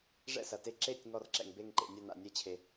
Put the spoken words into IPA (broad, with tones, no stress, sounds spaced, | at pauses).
ʐ ɛ̰˥˩ s ɐ˩ t e˥˩ ǁ e˥˩ tʲ ŋ ɔ˥˩ r ǁ ɛ̰˩ ŋ b e˥˩ ŋ ǃ ḛ˩ nʲ ɐ˥˩ n a̰˩ nʲ ɛ˥˩ t͡ɕʰ e˩